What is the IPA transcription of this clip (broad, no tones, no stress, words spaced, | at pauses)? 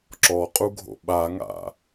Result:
ǁɔqʼuɡʱo̰ ɓaŋa̰